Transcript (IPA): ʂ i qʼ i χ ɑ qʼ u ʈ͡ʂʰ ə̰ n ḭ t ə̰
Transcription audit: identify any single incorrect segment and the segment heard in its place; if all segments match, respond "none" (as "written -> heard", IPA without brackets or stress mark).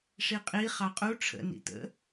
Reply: none